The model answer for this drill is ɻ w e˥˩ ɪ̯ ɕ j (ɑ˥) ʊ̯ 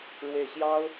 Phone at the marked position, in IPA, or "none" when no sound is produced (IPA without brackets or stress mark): ɑ˥